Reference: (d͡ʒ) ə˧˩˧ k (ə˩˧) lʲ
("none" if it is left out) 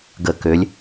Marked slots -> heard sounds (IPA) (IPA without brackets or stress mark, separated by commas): ɡ, ø˩˧